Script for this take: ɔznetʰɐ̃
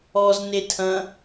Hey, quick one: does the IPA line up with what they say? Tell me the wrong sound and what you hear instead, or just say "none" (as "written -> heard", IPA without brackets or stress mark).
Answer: none